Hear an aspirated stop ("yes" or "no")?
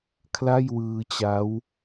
yes